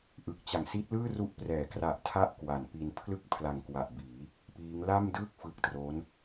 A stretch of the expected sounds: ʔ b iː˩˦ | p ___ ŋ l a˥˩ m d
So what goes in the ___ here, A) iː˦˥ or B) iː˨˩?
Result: A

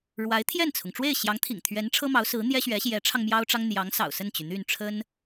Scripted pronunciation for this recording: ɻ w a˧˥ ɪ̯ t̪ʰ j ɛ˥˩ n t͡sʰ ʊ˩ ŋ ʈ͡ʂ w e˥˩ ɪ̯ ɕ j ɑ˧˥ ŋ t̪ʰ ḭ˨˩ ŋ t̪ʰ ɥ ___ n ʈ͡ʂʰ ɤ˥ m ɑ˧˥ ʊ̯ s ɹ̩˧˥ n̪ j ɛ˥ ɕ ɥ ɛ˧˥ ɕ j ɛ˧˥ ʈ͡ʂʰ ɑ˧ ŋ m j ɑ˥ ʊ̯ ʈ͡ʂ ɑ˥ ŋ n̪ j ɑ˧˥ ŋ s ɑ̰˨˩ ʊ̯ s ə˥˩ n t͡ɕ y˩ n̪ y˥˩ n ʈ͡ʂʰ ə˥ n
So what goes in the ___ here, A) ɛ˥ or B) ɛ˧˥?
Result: B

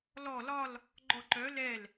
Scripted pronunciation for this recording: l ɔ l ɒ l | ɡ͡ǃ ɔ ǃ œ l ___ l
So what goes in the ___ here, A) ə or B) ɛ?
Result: B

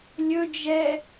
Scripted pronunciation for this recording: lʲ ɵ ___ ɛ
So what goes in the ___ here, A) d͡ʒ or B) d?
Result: A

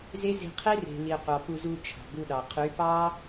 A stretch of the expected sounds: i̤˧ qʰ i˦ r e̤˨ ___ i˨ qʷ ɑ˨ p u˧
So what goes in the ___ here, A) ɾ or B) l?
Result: B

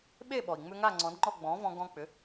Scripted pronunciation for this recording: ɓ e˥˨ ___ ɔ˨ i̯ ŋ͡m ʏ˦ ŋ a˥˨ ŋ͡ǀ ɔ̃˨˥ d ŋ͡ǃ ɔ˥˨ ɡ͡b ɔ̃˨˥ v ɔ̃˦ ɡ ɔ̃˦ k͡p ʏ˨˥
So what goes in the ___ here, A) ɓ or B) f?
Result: A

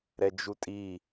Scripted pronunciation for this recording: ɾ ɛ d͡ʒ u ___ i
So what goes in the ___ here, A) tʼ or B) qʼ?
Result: A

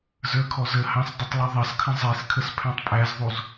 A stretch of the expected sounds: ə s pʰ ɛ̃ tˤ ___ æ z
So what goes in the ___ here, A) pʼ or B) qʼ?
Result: A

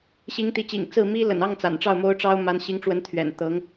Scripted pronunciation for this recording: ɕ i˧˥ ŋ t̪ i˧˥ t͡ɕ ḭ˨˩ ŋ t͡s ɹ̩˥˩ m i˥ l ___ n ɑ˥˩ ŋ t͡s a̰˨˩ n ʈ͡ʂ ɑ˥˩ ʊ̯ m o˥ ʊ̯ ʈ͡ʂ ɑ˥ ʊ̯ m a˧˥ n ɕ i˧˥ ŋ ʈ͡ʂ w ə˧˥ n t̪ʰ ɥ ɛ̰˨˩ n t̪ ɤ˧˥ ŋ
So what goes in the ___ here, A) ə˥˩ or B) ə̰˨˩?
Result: B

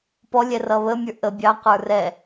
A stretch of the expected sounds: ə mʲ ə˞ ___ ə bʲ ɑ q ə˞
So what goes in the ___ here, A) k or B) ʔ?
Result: B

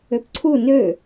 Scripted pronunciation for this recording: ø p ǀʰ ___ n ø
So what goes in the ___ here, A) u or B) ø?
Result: A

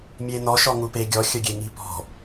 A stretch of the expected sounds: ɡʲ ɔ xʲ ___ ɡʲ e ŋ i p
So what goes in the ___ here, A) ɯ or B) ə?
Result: B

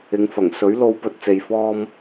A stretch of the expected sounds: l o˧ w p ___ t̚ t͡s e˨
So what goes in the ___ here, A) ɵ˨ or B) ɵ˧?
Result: B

